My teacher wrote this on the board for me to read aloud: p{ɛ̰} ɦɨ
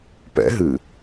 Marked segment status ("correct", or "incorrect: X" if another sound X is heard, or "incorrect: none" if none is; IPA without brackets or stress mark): correct